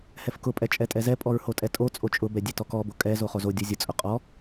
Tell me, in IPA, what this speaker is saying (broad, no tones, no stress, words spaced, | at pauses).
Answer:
hɛfkʊpʼɛ t͡ʃʼɛtʼɛzɛpʼɔɹ hotʼɛtʼot͡sʼo t͡ʃʼʊbɛ dʲɛtɔkɔbo kʼɛ zoχozodʲo zʲʊt͡sʼʊ qʼɔ